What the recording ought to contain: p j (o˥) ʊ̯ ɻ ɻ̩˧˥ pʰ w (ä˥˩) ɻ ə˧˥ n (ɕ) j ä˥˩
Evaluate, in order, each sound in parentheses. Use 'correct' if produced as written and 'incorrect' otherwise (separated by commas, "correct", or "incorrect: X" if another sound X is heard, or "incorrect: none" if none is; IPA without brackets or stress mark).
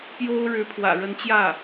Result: correct, incorrect: ä̰˨˩, incorrect: t͡ɕ